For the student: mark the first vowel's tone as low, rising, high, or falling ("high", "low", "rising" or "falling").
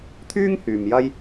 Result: high